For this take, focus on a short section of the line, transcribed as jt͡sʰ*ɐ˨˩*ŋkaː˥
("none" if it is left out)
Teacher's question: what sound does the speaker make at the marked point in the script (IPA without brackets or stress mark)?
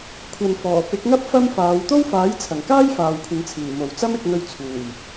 ɐ˨˩